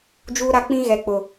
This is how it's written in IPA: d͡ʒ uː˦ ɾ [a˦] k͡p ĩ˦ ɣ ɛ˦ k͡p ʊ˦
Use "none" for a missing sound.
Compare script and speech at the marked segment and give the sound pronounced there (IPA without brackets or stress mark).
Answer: a˦